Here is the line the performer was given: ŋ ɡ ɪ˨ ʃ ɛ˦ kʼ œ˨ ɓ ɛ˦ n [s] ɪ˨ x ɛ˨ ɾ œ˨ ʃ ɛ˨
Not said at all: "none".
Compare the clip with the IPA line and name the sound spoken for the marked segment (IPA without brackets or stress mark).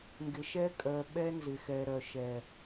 z